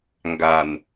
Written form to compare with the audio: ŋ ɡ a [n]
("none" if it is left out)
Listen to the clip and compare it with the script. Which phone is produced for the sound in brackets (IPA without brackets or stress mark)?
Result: n